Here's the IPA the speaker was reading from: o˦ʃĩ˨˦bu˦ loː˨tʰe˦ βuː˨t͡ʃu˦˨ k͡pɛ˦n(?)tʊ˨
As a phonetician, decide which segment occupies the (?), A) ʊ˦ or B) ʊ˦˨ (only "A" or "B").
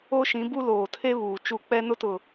A